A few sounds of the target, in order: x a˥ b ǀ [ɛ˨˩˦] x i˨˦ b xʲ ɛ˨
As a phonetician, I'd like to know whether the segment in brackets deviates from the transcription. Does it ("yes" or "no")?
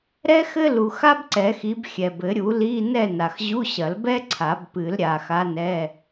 no